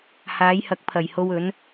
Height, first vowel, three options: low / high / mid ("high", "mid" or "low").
low